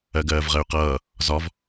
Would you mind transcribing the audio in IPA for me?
ɜ ɡ ɜː v ʁ ɜ y̯ q ʌː | z ɒ v

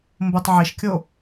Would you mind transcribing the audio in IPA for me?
m b o tˤ ʕ i ʃ kʲ o

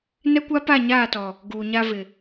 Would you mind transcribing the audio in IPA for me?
n ɛ˦ kʷ a˦ p a˦˨ ɲ aː˦˨ t ɔ˨ | ɡ uː˨ ɲ a˦ v ɪ˨

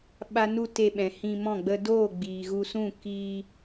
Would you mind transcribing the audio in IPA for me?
ɓ a˦ n u˦ t e˧ ɓ ɛ̃˨ h ĩ˧ m ɔ̃˦˨ ɡ͡b ə˧ d oː˦˨ ɡ͡b iː˨ ɣ u˧ s ũ˦˨ k iː˧

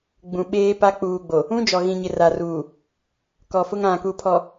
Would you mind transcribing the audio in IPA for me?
ɡ͡b ũ˨ ɓ eː˦ p a˦ k͡p uː˨ ɡ͡b o˨ | ũ˦ d͡ʒ ɔ˨ ɣ ĩ˨ ɲ ɪ˨ r a˨ r uː˨ | k ɔ˨ f ʊ˦ ŋ ã˨ k u˨ pʰ ɔ˨

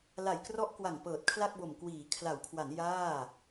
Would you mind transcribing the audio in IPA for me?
l a˨˩ j k r ɔ˦˥ ʔ k w a˨˩ ŋ p ɤː˨˩ t̚ kʰ l a˥˩ k̚ b o˨˩ m k w iː˩˦ kʰ l a˩˦ w kʰ w a˩˦ n j aː˥˩

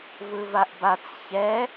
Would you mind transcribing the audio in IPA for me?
v ɯ v a ʔ b a t͡s ç ɛ

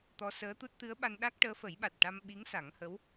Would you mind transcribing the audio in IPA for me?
t̪ ɔ˧˥ s əː˧˥ t̪ u˦˥ t̚ t̪ ɨ˧˥ ə̯ ɓ a˧ n ɗ a˦˥ k̚ ʈ əː˧˥ f ə˨˩˦ j ɓ a˨˩ t̚ ʈ a˧ m ɓ i˧˥ ŋ s a˨˩˦ ŋ h ə˧˥ w

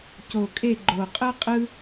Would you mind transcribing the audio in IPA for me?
c o˨˩ kʼ e˦˨ ɡ͡ǃ o˨˩ qʼ ɯ˥ qʼ ɯ˥

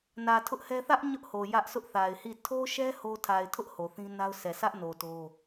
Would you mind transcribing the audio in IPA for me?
n ä˨ tʰ ʊ˦ ʔ h ɛ˦ θ ä˦ ʔ ɲ ʊ˦ ʔ h o˨ j ä˦ ʔ s ʊ˦ ʔ θ a˨ ɪ̯ h i˦˨ tʰ o˦ ʃ ɛ˦ h o˦ tʰ a˨ ɪ̯ tʰ ʊ˦ ʔ h o˨ θ ĩ˦ n a˦ ʊ̯ s ɛ˨ sʰ ä˦ ʔ n o˨ t o˦

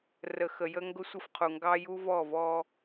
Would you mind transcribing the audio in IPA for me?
r ə˨ x ə˨ j ə˦ ŋ ɡ ʊ˦ sʷ ɪ˦ f qʰ u˨ ŋ ɡ ɑ˦ j u˦ v ɔ˦˨ v ɔ˦

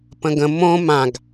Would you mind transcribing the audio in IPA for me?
p ə̃ ɡ ə̃ m õ m ã ɡ

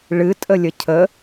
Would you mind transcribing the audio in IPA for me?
ɭ ɨ tʼ ə lʲ ə cʰ ə

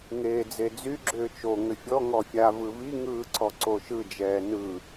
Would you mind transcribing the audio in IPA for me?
ŋ eː d͡z e d͡z y ɡ͡ǁ ʏː t͡ʃ o ŋ ʏ fʲ ɔ ŋ ɔ fʲ a v ɯ v i ŋ ɯː ǀ ɔ ǀ o ʃ ɯ d͡ʒ ɛː n ɯ

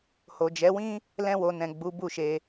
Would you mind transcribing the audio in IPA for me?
h o˨ d͡ʒ ɛ˨˦ w ĩ˦ | l ɛ̃˧ w o˨ n ɛ̃˨ ɡ͡b u˨˦ b u˦˨ ʃ e˧

